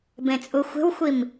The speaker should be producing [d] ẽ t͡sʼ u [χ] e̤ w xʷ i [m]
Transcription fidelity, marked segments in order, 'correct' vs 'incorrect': incorrect: b, incorrect: xʷ, correct

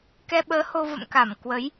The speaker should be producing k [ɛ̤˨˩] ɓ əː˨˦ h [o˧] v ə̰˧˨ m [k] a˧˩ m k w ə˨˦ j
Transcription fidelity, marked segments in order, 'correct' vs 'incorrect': incorrect: ɛ˧, correct, correct

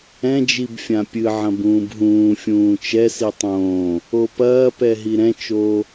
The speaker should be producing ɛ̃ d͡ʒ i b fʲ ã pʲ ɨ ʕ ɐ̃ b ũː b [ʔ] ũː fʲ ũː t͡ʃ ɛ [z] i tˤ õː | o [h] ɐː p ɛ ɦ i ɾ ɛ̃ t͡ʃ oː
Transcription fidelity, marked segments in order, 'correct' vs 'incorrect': incorrect: ɦ, incorrect: s, incorrect: p

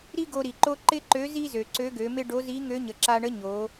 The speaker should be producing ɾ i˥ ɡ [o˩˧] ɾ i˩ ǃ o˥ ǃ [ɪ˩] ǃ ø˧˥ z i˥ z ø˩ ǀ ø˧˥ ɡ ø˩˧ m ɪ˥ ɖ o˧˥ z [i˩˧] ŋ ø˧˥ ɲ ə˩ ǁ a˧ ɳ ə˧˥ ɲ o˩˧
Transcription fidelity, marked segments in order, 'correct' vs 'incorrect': incorrect: o˧, incorrect: ɪ˥, incorrect: i˧˥

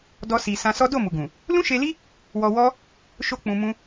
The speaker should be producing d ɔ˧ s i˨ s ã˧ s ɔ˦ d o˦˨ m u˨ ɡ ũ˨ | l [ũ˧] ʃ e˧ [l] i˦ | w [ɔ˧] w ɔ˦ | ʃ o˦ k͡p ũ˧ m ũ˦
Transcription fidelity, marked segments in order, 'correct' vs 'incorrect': incorrect: ũ˦, correct, correct

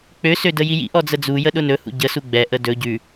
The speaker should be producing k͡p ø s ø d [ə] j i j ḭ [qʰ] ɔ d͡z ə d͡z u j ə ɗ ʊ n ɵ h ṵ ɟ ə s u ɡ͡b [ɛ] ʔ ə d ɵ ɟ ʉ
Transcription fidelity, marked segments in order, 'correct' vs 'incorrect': correct, incorrect: ʔ, correct

